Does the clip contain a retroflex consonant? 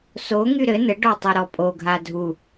yes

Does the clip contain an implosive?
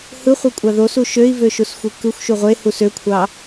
no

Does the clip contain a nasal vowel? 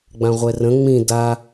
yes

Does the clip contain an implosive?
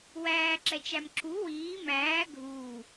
no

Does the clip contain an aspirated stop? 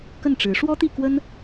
no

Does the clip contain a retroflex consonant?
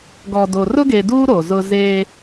no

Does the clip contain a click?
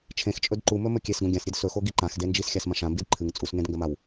yes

